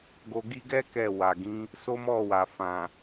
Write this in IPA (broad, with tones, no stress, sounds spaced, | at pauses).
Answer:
ɡ o˧ ɡ i˦ ɡ ɛ˦ k ɛ˦˨ w a˨ ɡ ĩ˨˦ | s o˦ m ɔ˦˨ w a˨ f ã˨